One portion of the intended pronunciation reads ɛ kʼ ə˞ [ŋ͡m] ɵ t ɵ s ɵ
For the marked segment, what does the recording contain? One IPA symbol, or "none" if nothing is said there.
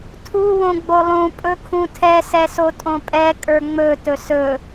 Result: ŋ͡m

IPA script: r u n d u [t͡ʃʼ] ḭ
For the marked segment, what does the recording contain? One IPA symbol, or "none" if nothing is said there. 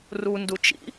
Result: t͡ʃ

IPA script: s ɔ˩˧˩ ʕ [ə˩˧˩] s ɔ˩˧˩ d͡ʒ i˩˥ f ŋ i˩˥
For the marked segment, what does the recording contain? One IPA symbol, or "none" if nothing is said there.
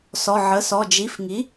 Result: ə˩˧˩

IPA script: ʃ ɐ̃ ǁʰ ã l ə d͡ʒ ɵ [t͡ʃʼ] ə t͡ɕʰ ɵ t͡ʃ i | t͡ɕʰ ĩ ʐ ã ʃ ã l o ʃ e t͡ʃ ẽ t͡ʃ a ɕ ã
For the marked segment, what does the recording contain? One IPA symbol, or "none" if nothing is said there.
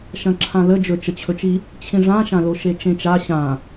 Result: t͡ʃ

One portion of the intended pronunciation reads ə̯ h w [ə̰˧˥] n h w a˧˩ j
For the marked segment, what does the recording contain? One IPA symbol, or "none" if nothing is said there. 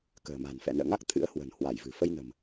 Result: ə̤˨˩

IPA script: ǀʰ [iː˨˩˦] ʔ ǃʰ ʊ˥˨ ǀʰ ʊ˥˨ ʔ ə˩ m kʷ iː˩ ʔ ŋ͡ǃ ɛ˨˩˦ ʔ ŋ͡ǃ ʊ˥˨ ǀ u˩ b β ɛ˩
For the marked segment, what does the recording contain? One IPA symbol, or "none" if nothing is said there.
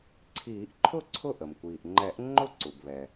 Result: iː˨˩˦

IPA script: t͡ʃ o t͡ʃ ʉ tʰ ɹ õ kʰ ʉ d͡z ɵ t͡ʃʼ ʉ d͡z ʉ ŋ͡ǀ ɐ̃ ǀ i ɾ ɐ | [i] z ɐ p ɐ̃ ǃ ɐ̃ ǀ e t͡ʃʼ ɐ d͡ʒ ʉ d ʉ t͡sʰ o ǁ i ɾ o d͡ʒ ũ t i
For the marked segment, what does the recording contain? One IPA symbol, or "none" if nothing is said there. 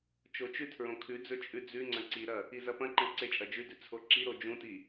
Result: i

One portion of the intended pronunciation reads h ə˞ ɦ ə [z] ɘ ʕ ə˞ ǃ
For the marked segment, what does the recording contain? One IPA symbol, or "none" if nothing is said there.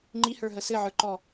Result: s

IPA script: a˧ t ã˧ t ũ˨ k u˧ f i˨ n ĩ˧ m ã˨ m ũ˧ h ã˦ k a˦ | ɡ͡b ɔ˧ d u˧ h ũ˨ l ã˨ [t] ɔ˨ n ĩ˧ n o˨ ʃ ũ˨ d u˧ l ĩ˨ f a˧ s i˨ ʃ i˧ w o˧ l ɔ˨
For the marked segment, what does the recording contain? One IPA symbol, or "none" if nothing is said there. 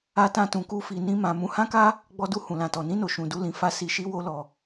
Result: t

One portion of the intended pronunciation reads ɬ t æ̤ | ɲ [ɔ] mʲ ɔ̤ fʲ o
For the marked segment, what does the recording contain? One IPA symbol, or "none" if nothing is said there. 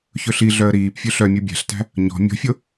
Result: ɔ̤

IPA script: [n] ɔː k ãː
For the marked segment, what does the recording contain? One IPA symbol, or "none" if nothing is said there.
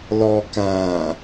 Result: l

